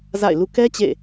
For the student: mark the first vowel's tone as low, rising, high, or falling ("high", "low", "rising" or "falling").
falling